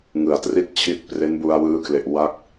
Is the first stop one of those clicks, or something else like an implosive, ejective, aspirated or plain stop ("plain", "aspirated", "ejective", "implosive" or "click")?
plain